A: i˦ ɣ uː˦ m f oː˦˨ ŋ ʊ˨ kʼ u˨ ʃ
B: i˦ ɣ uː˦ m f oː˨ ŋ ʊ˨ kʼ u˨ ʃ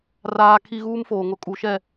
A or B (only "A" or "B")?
B